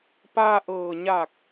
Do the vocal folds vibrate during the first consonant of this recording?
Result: no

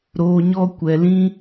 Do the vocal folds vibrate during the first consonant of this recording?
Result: yes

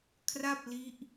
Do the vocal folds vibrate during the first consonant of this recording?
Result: no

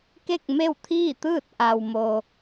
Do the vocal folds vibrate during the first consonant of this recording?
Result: no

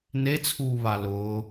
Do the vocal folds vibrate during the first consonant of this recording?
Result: yes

